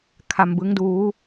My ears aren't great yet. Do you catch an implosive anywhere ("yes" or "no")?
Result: no